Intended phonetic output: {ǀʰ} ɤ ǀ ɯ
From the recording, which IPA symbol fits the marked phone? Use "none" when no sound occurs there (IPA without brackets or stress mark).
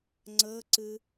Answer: ŋ͡ǀ